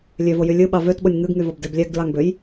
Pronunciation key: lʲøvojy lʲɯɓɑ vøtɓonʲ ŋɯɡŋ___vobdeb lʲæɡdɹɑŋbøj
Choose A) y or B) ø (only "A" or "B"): A